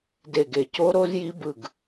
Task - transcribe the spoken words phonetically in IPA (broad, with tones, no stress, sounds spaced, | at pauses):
d e˦˨ ɡ e˦˨ c o˦˥ ɾ o˦˥ z j i˦˥ b ɯ˦˨ ɡ